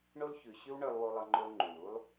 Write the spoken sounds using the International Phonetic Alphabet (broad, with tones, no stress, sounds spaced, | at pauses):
ɳ o˥ l ç ʉ˨ ɕ ʉ˥ w ɳ ə˞˦ lˠ w o˦ lˠ ʌ˦ ŋ͡ǃ o˦ l ŋ͡ǃ u˩ l u˥ lˠ